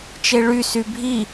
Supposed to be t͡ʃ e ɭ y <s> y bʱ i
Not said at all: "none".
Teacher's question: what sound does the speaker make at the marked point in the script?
s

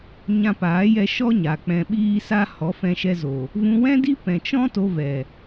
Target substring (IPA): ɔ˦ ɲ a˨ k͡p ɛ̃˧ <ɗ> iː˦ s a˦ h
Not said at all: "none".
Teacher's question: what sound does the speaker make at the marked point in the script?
ɓ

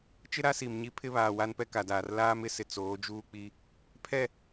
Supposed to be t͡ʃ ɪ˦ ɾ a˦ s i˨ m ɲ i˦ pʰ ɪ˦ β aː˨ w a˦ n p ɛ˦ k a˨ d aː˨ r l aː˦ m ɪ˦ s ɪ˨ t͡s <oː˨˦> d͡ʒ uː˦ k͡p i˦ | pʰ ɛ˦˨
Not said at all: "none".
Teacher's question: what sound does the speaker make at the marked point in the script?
oː˨˦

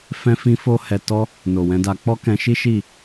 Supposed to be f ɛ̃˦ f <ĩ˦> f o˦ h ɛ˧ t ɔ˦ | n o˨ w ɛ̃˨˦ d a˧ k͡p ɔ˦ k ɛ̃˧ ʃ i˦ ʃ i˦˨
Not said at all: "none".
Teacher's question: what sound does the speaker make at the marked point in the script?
ĩ˦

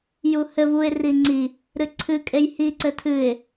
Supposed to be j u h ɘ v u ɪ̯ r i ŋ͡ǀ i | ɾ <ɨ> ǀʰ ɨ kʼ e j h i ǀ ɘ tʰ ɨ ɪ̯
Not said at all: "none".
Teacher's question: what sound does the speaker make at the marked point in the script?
ɨ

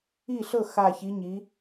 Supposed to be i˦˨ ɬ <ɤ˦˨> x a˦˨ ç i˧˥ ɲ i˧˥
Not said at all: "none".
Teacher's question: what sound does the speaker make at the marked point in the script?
ɤ˦˨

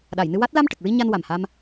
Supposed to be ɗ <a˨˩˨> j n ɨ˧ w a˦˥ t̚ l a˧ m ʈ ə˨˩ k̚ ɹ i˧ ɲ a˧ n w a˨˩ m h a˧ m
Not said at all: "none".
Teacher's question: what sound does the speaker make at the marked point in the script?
a˨˩˨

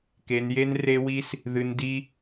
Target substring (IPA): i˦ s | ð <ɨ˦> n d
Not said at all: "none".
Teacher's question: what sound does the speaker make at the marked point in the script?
ɨ˧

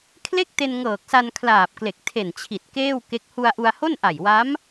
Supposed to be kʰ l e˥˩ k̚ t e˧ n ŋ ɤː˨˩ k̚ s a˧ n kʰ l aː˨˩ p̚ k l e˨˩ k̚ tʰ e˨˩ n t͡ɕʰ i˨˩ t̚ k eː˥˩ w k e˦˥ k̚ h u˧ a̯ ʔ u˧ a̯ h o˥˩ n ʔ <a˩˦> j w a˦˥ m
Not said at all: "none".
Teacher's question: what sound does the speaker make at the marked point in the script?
a˨˩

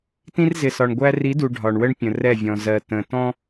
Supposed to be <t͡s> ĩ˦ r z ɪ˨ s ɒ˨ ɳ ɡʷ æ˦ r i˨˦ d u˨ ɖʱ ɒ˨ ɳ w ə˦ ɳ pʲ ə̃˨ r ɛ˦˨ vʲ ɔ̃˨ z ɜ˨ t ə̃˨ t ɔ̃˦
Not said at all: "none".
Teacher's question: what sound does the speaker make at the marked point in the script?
t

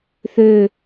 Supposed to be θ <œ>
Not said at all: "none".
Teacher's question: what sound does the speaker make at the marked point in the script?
ø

